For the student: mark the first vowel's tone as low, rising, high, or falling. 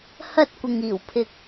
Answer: high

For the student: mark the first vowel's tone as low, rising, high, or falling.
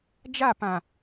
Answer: falling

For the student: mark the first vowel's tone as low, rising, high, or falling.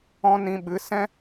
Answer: high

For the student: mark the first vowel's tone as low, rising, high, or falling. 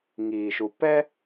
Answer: low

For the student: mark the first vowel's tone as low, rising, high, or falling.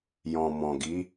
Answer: low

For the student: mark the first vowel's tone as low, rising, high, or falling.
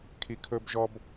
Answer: high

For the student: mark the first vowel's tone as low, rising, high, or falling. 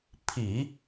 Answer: low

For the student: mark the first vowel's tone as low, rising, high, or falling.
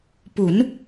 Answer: rising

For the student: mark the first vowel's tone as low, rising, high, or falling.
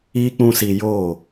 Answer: high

